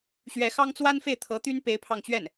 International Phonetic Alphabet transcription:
ɕ ɥ ɛ˧˥ x ɑ˥ ŋ t͡s w a˥ n f e˥˩ ɪ̯ t̪ʰ ɤ˧˥ t̪ y˥ n p e˧˥ ɪ̯ pʰ ɑ˧ ŋ t͡ɕ ɥ ɛ˥˩ n

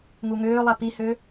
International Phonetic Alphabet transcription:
ŋ u ŋ øː lˠ a p i h ø

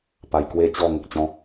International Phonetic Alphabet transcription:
p a˧ j k w e˥˧ t͡ɕ ɔ˥˧ ŋ ə˨ k̚ t͡ɕ ɔ̃˦

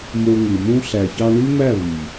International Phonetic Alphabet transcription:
m o˧ ŋ ɯ˨ m ũ˦ ɬ æ˧ ç ɑ˦ ɳ y˦ m æ˦˨ β i˨

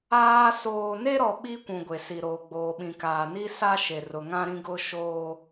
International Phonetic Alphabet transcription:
aː˦ s oː˨ n e˦ ɾ ɔ˨ ɓ i˦ kʷ ũ˨ ɡʷ e˨ s i˨ ɾ oː˨ ɡ͡b oː˨ ɓ ĩ˨ k aː˨ n i˦ s a˦ ʃ e˨ r ʊ˨ ŋ ã˦ ɾ ĩ˦ ɡ ʊ˦ ʃ oː˦

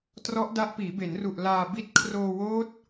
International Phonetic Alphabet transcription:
t r ɔ˦˥ ʔ d a˦˥ ʔ p iː˩˦ b e˩˦ n r u˨˩ ʔ l aː˧ b i˦˥ t̚ kʰ r oː˧ w oː˦˥ t̚

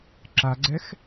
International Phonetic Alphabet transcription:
ǁ a ɡ͡ǀ ɛ x

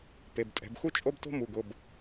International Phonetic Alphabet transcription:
p e˩˧˩ b tʼ ɛ̤˩˧ b x u˥ t͡ʃʼ o˥ b t o̤˥ m u˩˧˩ ɡ ʊ˩˧˩ b

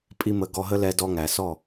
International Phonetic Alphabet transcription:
pʼ i˦ m ə˧ ɡ ɔ˧ ɦ ə˦ l ɛ˧ d ɔ˧ ŋ æ˨ s ɔ˦˨

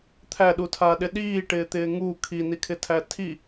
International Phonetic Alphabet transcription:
t̪ʰ æ ɗ u tʰ a ɗ ɪ ɗ iː ʈ ɪː t̪ ɪː ŋ u kʰ i n i kʰ ɪ tʰ æ tʰ i

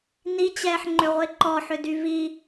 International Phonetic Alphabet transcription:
n i t͡ɕ ɛː ħ ŋ͡ǃ ʏ ʁʷ e ǃ ɔ ħ ʏ d y v i

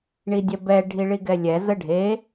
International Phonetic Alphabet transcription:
ɳ i dʲ ɛ b ɛ ɖʱ i ɭ i ɡ ɛ lʲ ɛ z ə ɖʱ e

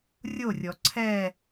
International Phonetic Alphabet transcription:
rʲ o rʲ ɔ ǀʰ ɛ

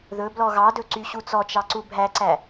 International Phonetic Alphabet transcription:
ð ɵ b l ɔ ɣ ɑ d ɵ ǀ y ɕ u t͡s ɔ t͡ʃ ɑ ǀ u bʱ æ ǀ æ

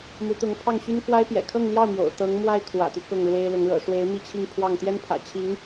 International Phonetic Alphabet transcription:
m u˧˥ t̪ ʊ˧˥ ŋ pʰ ɑ˥˩ ŋ ɕ y˥ n k w a˥ ɪ̯ p j ɛ̰˨˩ kʰ ɤ˥˧ ŋ l j ɑ˥˩ ʊ̯ m j o̰˨˩ ʊ̯ t̪ ɤ˧˥ ŋ m w a˥˩ ɪ̯ kʰ w ä̰˨˩ t̪ y˦ k ʊ˥˩ ŋ ɻ w e˥ ɪ̯ l ʊ˧˥ ŋ ɻ ɤ̰˨˩ ʂ w e˧˥ ɪ̯ m i˥˧ t͡ɕʰ i˥˧ ŋ pʰ w ɑ˥˩ ŋ t̪ j ɛ˥ n pʰ ä̰˨˩ t͡ɕʰ i˧˥ ŋ

